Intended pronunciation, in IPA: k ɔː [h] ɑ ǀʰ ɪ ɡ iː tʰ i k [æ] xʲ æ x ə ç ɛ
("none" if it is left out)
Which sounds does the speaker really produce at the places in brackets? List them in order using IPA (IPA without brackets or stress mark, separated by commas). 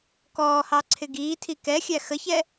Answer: h, ɛ